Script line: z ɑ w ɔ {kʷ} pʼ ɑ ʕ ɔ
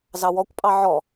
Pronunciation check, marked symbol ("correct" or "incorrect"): correct